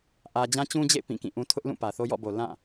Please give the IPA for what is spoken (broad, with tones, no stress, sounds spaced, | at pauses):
ʔ ä˦ d͡ʑ ã˦ t͡ɕ ũ˦ d͡ʑ ḛ˦˨ ɪ̯ p ĩ˦˨ k ĩ˦˨ ʔ ũ˦ tʰ ʊ˦ ʔ l ũ˦˨ p ä˨ θ o˦ j ɔ̰˦˨ b o˨ l ã˦˨